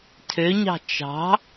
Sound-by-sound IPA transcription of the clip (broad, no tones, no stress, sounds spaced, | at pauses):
tʰ ø ɲ ɑ̤ t͡ʃ ɑ̤